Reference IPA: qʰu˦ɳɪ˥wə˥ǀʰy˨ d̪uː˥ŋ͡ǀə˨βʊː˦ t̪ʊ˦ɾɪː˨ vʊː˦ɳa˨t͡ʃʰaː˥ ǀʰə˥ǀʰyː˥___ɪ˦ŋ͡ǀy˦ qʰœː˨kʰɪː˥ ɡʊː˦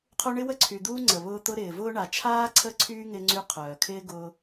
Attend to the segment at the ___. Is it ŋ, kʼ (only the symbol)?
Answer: ŋ